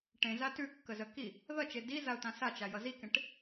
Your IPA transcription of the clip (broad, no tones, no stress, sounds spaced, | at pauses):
ʈ ẽ z a t ʉ kː ə z ə k i | ð ʌ t͡ʃ e d i z a ʊ̯ t ã s a t͡ʃ a j ʌ z i k ẽ ʈ